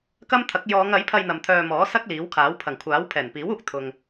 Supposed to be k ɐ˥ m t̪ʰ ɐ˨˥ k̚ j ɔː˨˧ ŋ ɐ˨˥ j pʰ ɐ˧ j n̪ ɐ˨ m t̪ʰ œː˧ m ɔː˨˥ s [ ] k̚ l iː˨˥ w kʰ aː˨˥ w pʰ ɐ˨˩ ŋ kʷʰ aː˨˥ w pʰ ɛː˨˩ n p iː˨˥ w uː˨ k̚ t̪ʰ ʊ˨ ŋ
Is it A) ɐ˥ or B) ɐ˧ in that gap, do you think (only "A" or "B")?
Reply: A